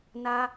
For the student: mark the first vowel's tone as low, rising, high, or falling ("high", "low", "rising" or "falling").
high